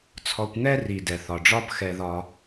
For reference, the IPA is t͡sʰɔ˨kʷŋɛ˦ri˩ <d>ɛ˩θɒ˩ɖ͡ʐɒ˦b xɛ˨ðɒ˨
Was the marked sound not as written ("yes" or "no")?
no